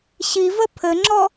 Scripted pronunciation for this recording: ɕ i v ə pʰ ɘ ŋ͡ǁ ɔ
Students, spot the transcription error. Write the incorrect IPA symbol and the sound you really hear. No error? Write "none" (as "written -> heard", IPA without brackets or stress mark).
none